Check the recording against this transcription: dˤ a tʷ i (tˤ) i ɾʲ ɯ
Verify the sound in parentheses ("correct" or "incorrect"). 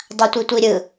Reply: incorrect